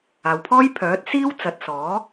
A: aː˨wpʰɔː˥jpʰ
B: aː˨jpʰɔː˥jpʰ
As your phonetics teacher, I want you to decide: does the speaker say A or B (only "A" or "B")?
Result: A